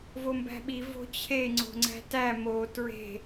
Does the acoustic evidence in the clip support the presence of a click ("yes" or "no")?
yes